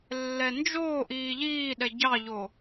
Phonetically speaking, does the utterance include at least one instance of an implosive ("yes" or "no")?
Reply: yes